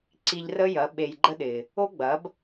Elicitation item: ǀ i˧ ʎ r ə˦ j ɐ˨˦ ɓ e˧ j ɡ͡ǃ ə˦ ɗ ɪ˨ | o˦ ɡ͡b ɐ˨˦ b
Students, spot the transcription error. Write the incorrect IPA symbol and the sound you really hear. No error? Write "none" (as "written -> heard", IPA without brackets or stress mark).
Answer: none